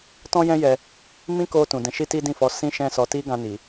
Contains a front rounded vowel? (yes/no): no